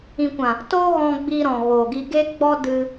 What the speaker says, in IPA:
ĩ˨ kʷ ã˨ | t o˦ ɣ ɔ̃˧ ɡ͡b i˧ ɾ ɔ̃˨ ɣ oː˨ ɡ i˧ ɡ e˦ ɡ͡b ɔ˦ d ɨ˧

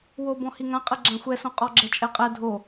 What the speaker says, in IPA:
w o b ɔ̃ h i ŋ ã qʼ ɛ ɡ͡ǁ ã xʷ ɛ s õ qʼ ɔ ɡ͡ǁ ɛ t͡ʃʼ ɛ qʼ ɛ dʱ o

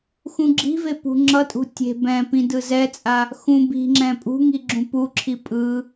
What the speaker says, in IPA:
x ũ ɡ͡ǁ i̤ v e p ṳ ŋ͡ǁ ʌ tʼ ṳ tʲ e̤ b ɛ̃ p ĩ d ɯ z ɛ t͡sʼ a | x ũ b i̤ ŋ͡ǁ ɛ̃ pʼ ṳ ŋ i ɡ͡ǁ ũ p u ǁʰ i pʼ ɯ

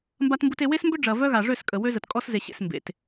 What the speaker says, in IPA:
m b a˦ t m b u˦ t e˦ w e˦ s m b ʏ˦ ɖ͡ʐ ɐ˨ v œ˦ ɣ a˨ ʐ ø˦˨ s kʼ ə˨ w ø˦ z ə˨ t kʼ ɔ˦ s z e˨ ɕ ḛ˨ s m b ḛ˨ t

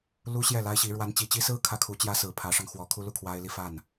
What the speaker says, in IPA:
l u˥ ɕ j ɛ˥˩ l a˥ ɪ̯ ɕ i˧˥ ɻ w a˧˥ n t͡ɕ i˨˩ t͡ɕ i˥ s ɹ̩˥ kʰ ä˥ kʰ u˧˥ t͡ɕ j ä˥ s ɹ̩˨˩ pʰ ä˧˥ ʂ ɑ˧ ŋ x w ɔ˧˥ kʰ u˥ l u˥˩ kʰ w a˥ ɪ̯ l i˥˧ f a˥˩ n

